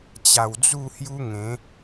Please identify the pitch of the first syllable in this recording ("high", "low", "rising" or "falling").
low